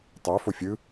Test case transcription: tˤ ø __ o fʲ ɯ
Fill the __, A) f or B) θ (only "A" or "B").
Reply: A